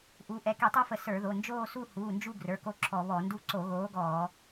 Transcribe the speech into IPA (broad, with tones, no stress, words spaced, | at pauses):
ʔu˨˥ ʔɛ˩˧˩ki˧˩˧tˤu˥˧fə˧˩˧ sə˞˧˩˧ðo˩˧˩ nd͡ʒoː˥˧su˥˧ huː˩˧˩nd͡ʒu˥˧ ɡrə˞˩˧˩ko˥˧ǁʰɔ˧˩˧ βɔ˧˩˧ndu˥˧ ǀo˧˩˧ɣoː˨˥ɡɔː˧˩˧